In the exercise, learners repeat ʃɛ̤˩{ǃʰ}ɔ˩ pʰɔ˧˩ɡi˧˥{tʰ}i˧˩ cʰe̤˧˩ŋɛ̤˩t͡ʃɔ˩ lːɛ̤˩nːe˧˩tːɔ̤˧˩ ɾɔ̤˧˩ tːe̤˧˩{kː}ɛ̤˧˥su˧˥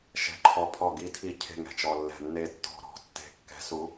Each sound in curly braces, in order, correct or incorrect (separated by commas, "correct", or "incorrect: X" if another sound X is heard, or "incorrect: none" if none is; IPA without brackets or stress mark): correct, correct, correct